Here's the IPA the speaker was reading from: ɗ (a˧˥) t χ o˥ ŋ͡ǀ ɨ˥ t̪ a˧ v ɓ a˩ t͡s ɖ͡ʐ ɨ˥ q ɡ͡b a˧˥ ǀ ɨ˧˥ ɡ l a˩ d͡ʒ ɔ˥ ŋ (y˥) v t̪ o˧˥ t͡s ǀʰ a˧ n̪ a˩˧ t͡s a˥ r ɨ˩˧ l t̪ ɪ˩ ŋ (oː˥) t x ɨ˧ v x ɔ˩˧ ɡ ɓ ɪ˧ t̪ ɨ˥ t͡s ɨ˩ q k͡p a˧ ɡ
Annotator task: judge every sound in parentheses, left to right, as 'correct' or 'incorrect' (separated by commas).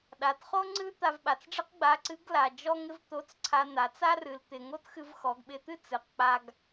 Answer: incorrect, incorrect, incorrect